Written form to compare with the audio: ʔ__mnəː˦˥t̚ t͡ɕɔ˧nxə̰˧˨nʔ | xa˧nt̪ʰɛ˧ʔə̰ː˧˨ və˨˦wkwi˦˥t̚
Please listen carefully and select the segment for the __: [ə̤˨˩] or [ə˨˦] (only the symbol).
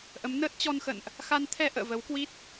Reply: ə˨˦